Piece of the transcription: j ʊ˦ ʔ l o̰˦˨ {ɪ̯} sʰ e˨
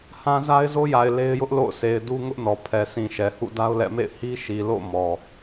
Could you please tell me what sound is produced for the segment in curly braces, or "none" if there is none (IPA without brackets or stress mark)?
ʊ̯